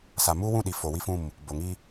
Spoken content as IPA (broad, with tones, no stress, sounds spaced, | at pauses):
s a˨ m uː˦ w ũ˦˨ ɗ i˨ f o˨ w i˦ f ũ˦˨ m | b o˨ ŋ i˦